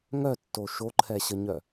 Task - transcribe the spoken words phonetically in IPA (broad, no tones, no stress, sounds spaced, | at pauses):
ŋ œ tː o ʃ o ǃʰ ɛ ɕ ə ɲ œ